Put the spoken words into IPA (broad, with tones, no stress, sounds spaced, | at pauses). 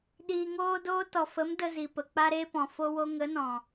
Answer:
ɗ iː˧ ŋ oː˦ d oː˦ t ɔ˨ f ə˨˦ m d ə˧ z i˨ p ə˨ k͡p a˧ ɾ e˧ p ɔ̃˨ f o˦ w o˦ ŋ ə˨˦ n ɔ̃˨